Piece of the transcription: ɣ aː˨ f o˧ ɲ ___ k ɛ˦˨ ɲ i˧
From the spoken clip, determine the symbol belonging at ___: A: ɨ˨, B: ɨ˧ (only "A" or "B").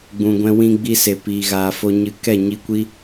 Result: A